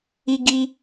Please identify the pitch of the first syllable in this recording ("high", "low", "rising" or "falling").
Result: high